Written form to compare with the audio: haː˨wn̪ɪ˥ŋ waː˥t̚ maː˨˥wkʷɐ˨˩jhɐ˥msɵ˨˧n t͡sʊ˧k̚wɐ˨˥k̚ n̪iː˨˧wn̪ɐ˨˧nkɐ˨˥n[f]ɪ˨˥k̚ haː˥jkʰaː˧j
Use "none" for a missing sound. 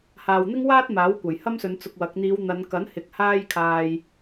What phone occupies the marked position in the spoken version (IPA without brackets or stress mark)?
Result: h